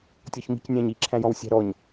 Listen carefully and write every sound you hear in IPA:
tʲ ɔ ç m i̤ c nʲ æ̃ ɲ i ǁʰ æ̃ j ɔ̃ w sʲ æ̤ ɾ ɔ ɲ

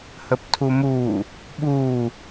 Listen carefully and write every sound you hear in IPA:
h ə p tʰ u m uː | ɓ uː

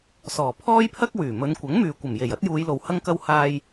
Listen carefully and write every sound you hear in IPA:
s ɔː˨˩ pʰ ɔː˥ j pʰ ɐ˥ k̚ w yː˨˩ m ɵ˨˧ n kʷ ɐ˨˥ ŋ m yː˨ kʷ ɐ˨˩ m j e˨˩ j ɐ˥ t̚ j uː˨˧ j l o˨ w h ɐ˧ ŋ k ɐ˧ w h aː˧ j

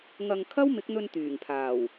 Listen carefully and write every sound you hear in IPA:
ŋ ɐ˧ ŋ kʰ ɐ˥ w m ɪ˨˥ k̚ n̪ ɵ˧ n t̪ yː˨˩ ŋ pʰ aː˨˩ w

